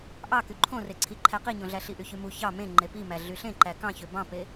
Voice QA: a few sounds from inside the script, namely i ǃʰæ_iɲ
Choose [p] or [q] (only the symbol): q